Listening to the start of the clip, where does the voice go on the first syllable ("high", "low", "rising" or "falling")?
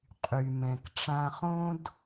low